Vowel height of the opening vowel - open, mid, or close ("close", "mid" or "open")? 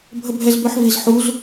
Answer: mid